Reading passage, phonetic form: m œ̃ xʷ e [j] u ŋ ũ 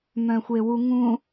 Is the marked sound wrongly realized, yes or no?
yes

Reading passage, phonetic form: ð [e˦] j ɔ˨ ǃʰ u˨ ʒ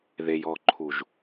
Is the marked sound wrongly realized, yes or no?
yes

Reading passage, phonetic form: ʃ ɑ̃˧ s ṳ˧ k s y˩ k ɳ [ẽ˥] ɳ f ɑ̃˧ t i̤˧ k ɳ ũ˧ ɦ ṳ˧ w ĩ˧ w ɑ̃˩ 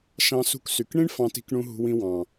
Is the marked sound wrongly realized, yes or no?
yes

